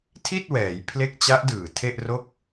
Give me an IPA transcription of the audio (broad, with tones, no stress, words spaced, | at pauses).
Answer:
tʰi˥˩t̚wɛː˩˦jpʰle˦˥k̚ t͡ɕa˦˥ʔdɯː˨˩ tʰe˥˩ʔro˥˩k̚